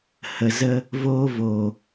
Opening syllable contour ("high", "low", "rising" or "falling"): low